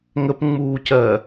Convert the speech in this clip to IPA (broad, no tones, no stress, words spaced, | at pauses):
ŋəpŋ͡muːcɜ